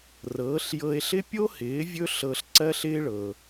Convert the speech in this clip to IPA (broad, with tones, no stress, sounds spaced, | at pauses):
r ɤː˩˥ ɬ j ɤ˧ e̯ ɬ ɪ˥ pʲ o˥ h ɪː˩˥ vʲ ɵ˥ ɬ ɤ˧ ɬ ǀ ɜ˥ ɬ ɪː˥ ɭ ɤː˩